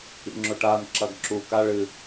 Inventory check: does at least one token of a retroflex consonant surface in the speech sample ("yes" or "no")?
yes